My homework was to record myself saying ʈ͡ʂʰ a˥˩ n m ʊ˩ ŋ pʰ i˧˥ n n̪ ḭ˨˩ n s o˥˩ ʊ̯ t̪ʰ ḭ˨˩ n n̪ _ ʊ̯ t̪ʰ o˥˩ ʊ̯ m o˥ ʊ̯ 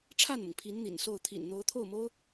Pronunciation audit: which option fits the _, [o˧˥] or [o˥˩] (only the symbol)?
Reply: o˧˥